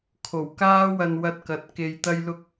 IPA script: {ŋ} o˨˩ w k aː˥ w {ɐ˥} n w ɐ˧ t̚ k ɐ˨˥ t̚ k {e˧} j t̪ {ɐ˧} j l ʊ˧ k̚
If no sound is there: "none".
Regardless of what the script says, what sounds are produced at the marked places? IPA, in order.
kʰ, ɐ˧, e˧, ɐ˧

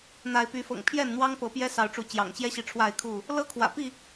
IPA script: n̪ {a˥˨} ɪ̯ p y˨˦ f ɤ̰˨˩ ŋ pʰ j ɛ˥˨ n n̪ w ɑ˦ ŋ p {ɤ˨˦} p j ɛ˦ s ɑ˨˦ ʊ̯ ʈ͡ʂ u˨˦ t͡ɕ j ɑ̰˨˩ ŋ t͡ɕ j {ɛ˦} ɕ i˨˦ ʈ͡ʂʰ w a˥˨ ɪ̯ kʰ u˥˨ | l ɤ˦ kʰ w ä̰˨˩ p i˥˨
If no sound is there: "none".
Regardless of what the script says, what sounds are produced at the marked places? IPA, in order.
a˨˦, ɤ˨˦, ɛ˦

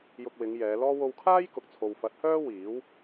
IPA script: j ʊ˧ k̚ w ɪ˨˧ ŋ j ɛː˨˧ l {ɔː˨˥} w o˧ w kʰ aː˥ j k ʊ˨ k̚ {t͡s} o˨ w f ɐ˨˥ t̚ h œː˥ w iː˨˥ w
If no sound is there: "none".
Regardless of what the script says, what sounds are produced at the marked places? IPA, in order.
ɔː˥, t͡sʰ

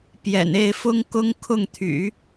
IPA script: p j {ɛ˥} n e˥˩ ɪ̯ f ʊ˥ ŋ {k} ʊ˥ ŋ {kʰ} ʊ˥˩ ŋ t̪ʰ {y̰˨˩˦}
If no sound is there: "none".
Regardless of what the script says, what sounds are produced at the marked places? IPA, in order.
ɛ̰˨˩, k, kʰ, y̰˨˩˦

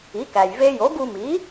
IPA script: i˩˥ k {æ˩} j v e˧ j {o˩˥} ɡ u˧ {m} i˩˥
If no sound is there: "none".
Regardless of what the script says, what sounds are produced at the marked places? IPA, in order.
æ˩, o˩˥, m

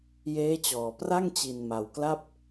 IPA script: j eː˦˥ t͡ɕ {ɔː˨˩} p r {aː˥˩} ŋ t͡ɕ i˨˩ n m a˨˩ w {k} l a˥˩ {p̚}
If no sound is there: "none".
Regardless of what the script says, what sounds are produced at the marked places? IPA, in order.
ɔː˨˩, a˥˩, k, p̚

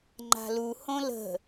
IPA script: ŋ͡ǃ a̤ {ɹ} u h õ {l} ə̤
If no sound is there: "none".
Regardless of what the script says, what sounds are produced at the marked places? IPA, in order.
l, l

